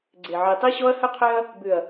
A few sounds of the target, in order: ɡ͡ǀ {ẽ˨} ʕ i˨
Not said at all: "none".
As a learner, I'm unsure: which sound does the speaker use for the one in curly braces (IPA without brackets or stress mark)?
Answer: e˨